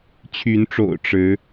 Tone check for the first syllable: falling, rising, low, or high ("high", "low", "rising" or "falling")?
rising